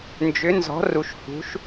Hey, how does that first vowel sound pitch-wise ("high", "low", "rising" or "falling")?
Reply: rising